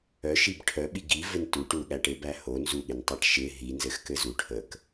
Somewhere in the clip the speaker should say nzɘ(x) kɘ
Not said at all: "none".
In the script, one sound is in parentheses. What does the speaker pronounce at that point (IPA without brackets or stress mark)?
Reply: x